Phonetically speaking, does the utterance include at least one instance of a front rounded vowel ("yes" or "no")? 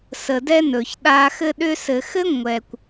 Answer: yes